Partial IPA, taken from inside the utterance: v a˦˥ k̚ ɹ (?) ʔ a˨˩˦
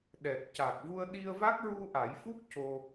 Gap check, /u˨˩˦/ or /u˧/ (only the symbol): u˧